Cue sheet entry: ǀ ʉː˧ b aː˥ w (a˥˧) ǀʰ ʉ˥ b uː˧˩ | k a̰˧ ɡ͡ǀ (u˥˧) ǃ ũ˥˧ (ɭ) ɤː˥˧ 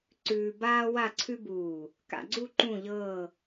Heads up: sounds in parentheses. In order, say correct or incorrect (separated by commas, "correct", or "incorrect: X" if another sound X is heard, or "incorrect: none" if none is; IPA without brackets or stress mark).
correct, correct, incorrect: ʎ